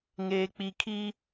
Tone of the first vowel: low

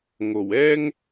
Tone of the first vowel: low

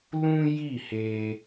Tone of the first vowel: high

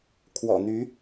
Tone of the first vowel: low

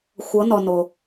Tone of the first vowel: rising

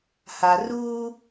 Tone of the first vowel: low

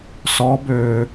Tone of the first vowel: rising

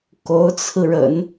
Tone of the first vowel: rising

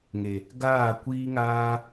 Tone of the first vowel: low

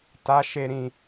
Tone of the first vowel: high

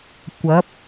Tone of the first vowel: rising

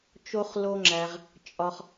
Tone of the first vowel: high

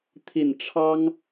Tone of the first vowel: low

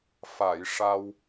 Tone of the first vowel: low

